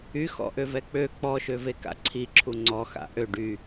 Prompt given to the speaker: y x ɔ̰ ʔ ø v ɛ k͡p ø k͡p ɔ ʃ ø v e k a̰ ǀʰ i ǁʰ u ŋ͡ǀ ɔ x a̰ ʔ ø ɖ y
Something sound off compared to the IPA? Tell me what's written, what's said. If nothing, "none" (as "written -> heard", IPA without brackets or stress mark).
none